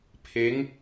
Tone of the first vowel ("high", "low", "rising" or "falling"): rising